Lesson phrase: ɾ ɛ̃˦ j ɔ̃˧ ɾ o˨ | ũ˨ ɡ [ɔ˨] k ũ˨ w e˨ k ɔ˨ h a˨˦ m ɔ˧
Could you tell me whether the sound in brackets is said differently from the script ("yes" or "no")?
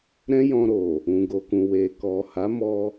yes